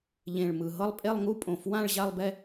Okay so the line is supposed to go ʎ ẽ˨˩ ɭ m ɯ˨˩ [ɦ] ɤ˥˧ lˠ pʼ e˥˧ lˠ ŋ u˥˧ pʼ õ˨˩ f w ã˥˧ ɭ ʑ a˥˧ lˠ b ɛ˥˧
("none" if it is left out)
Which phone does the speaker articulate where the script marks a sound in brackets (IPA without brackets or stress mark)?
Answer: ɦ